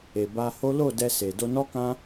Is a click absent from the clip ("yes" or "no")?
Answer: yes